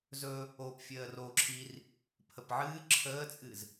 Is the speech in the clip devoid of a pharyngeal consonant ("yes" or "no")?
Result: no